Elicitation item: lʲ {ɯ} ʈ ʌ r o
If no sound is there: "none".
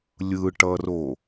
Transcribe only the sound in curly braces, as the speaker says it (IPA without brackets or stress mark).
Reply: ɯ